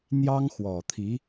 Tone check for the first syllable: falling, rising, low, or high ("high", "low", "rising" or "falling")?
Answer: high